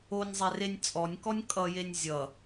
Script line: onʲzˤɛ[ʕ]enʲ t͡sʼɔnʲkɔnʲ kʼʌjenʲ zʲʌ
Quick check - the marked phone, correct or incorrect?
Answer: incorrect